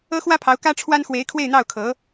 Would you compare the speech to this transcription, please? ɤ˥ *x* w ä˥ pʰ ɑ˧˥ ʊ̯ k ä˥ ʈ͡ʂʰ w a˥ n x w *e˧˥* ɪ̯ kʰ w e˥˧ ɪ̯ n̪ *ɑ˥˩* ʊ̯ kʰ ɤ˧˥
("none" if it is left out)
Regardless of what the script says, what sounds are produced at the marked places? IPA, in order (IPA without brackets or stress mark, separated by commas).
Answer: x, e˧˥, ɑ˥˩